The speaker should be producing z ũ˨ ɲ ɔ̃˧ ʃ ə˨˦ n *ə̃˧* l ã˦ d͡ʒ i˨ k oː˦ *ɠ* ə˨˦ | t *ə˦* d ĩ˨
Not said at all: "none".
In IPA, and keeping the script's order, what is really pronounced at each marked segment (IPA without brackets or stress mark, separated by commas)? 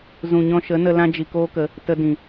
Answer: ə˧, k, ə˧